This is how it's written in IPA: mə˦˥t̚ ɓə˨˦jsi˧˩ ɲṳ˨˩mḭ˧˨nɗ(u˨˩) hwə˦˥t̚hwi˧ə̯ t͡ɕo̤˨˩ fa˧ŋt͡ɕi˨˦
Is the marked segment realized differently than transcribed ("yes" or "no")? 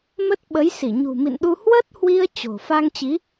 yes